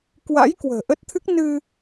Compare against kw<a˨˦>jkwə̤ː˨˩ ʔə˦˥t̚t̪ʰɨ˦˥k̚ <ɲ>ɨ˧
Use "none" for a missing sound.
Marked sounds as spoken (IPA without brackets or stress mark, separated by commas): a̰˧˥, n